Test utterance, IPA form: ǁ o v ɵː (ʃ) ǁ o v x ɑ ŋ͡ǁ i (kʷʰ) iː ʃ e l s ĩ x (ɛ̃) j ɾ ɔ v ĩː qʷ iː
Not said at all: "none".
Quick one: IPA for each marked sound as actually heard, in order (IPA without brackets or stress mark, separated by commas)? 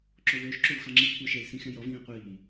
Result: ʃ, kʷʰ, ɛ̃